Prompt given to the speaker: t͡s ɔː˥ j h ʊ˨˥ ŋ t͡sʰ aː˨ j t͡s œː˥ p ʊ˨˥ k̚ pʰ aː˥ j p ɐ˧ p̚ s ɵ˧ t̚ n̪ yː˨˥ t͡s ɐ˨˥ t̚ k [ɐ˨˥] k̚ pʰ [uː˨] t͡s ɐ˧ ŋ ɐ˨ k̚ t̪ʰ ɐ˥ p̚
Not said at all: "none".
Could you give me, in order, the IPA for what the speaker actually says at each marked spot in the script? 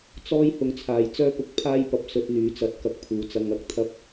ɐ˨˥, uː˨

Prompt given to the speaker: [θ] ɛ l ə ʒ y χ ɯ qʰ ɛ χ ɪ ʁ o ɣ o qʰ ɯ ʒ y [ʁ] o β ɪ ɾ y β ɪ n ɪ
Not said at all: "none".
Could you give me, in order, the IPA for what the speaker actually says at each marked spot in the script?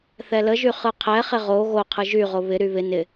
θ, ʁ

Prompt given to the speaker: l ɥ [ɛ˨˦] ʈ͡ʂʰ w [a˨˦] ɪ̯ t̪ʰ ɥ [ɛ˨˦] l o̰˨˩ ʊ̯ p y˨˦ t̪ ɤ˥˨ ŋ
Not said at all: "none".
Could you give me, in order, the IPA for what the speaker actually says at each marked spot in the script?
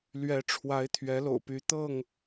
ɛ˨˦, a˨˦, ɛ˨˦

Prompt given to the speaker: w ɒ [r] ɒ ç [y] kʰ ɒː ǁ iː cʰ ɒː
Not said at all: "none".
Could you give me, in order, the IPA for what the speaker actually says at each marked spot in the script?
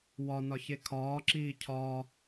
n, e

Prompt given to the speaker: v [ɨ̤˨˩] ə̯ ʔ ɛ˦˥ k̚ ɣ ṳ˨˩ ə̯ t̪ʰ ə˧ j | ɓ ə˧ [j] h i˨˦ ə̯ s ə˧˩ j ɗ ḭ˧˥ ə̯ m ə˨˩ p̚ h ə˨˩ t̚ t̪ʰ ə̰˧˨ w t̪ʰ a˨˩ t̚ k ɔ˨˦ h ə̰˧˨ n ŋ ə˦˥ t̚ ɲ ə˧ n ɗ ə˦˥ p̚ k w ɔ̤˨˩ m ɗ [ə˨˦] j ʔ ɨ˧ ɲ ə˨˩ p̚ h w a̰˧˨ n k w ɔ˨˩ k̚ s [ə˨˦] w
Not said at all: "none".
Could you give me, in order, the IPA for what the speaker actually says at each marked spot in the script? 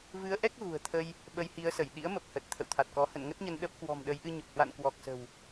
ɨ˨˦, j, ə˨˦, ə̤˨˩

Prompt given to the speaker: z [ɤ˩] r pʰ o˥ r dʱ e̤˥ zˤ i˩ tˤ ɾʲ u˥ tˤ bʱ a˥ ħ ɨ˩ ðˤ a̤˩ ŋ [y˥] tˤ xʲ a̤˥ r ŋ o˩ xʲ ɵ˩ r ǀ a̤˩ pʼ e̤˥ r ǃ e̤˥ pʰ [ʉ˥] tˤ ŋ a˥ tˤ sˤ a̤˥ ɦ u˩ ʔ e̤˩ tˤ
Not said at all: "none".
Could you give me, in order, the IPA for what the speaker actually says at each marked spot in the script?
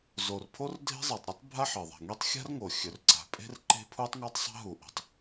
o˩, i˥, u˥

